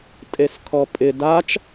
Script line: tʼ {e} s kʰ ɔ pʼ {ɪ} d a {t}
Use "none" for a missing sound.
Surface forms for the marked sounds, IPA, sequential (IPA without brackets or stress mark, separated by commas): e, ɪ, t͡ʃ